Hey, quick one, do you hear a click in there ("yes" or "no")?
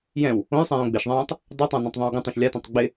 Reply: no